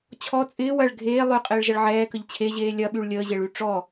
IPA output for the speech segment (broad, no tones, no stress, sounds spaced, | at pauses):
t͡ɕʰ ɔ t͡sʼ ɪː w ɐ ɭ ɡʱ eː lˠ y qʼ ɪː ɭ ʒ ɐ ɭ ʕ ɛː k ə ʎ t͡ɕʰ e ʑ eː lʲ ɐ ɓ y ɭ lʲ əː ʑ e ɭ y ʈ͡ʂ ɔ